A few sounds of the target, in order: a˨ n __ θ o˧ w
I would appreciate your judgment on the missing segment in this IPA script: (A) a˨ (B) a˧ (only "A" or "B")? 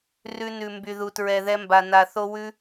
A